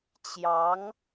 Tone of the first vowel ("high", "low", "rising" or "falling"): rising